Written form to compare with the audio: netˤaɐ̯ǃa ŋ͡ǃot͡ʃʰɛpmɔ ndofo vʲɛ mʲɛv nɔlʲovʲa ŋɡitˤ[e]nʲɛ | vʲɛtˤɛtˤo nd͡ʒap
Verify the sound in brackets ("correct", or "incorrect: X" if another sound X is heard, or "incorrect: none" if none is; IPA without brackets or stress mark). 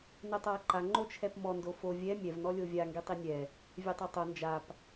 incorrect: i